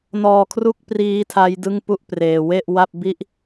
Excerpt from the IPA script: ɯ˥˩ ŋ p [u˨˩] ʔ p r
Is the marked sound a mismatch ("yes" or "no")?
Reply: yes